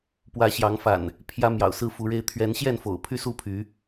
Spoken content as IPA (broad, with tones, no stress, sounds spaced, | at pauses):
p w ä˨˦ ɕ j ɑ˨˦ ŋ f a̰˨˩ n | pʰ j ä˦ m j ɑ̰˨˩ ʊ̯ s ɹ̩˥˨ f u˨˦ ɻ e˦ ɪ̯ t̪ʰ ɥ ɛ˨˦ n ɕ j ɛ˥˨ n f o̰˨˩ ʊ̯ pʰ y˦ s u˥˨ pʰ y˨˦